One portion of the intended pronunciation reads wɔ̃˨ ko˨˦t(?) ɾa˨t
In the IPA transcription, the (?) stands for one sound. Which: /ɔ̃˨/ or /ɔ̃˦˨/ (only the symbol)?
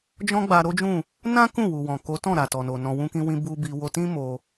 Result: ɔ̃˦˨